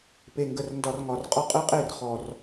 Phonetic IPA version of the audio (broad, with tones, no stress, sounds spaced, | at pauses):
p e˨ ŋ ɡ ə˨ r n d ɒ˨ r ŋ ɒ˨ r qʼ ɒ˦ qʼ ɯ˦ qʼ e˦˨ r χ ɔ˨ r